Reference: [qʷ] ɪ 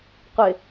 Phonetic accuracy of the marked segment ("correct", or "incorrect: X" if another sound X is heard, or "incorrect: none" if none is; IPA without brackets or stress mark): correct